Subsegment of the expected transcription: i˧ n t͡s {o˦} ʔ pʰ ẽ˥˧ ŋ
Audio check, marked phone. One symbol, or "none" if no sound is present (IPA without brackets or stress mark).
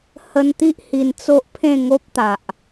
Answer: o˦